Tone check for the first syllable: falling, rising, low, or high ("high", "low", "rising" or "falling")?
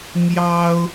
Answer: high